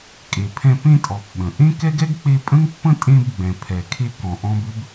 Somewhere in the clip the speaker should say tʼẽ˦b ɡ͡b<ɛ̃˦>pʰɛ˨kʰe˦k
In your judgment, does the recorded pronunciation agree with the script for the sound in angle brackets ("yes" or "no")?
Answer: no